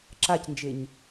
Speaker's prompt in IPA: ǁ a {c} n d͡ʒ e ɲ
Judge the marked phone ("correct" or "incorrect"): correct